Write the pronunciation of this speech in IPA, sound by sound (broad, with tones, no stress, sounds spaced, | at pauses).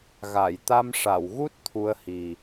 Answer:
ɣ a˨˩˨ j t̪ a˧ m ʂ a˨˩˨ w ɣ u˦˥ t̚ t̪ʰ u˧˥ ə̯ h i˨˩